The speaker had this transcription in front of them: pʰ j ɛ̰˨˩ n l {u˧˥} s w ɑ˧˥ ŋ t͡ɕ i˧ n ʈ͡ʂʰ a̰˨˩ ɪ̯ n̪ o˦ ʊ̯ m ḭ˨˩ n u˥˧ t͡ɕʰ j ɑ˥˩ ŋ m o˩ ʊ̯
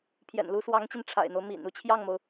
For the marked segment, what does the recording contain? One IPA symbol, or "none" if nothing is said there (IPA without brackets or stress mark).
u˧˥